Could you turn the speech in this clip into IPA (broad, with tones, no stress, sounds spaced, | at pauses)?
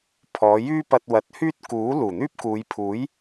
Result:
pʰ ɔː˨˧ j yː˥ p ɐ˧ t̚ w ɐ˨˥ t̚ h yː˥ t̚ k uː˨˥ l uː˨˩ n̪ yː˥ p̚ k uː˨˧ j pʰ uː˨˥ j